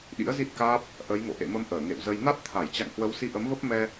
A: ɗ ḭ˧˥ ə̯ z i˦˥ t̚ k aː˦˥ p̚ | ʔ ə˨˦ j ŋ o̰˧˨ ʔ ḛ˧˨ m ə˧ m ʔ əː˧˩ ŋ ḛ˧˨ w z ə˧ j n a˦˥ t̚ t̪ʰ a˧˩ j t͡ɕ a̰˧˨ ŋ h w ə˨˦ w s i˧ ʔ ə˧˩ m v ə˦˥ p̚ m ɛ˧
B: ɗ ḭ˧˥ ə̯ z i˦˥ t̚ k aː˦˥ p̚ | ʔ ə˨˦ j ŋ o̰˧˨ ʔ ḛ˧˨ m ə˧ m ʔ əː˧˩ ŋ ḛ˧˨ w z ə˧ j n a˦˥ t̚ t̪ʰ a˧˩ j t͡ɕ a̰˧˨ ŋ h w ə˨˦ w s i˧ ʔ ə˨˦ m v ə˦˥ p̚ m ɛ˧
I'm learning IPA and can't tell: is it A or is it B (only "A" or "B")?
B